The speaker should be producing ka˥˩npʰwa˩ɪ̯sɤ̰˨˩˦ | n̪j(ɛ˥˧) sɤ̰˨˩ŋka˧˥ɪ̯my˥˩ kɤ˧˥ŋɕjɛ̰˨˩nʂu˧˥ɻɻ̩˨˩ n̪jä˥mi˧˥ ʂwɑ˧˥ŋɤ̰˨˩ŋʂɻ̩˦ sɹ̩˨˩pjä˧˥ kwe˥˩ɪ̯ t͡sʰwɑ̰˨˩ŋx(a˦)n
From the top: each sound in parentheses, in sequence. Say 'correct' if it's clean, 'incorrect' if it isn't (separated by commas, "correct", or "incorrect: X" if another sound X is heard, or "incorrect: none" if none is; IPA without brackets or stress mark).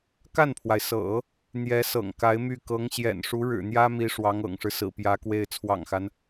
incorrect: ɛ˧˥, correct